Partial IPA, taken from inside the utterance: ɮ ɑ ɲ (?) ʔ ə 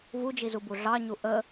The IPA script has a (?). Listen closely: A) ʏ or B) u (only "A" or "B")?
B